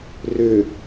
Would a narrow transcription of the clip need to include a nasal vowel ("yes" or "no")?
no